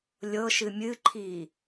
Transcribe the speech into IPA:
lʲɤʃɨ mʲɨǃʰi

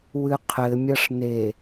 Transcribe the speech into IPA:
wɨqʰɘ mʲɐʂne

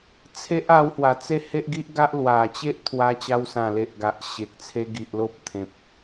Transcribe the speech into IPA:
t͡sʰe˦ʔ a˧whwa˨˩t͡se˥˧ he˦ʔɡi˦ʔɡa˦ʔ lwa˨˩t͡ɕe˦ʔ t̪ʰwa˧t͡ɕa˧wsã˨˩le˨ʔ ɡa˨ʔɕe˨k̚t͡sʰe˦ ɡi˨ʔlo˦p̚t̪ʰẽ˨p̚

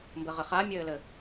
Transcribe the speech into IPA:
mbɘʁɘχa mʲɘːlɘ

